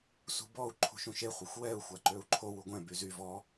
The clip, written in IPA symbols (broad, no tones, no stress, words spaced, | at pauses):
sṳbɔu̯ ǃʰṳʃũʃe χʷœxʷwɛu̯ xʷaǃøu̯ǃʰow uɡʷɛ̃ byzy vɔ